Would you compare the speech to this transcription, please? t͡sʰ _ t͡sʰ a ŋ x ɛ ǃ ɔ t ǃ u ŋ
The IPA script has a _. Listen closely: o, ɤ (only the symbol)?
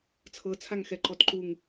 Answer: ɤ